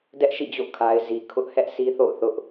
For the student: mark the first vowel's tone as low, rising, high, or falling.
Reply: high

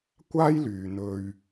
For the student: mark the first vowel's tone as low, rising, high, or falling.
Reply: high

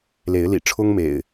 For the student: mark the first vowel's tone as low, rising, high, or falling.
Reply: rising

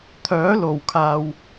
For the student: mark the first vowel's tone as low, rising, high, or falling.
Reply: rising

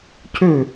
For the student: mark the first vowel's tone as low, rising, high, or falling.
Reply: falling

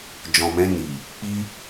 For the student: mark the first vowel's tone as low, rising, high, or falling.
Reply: low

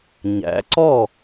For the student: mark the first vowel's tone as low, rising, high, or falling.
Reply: rising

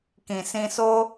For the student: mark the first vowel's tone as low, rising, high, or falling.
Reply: low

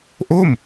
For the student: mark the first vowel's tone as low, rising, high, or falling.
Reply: falling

